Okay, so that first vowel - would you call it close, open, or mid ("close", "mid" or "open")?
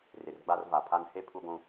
close